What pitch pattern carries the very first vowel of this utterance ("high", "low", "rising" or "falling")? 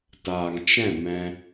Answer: low